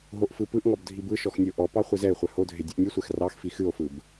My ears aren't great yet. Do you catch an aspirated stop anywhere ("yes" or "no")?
no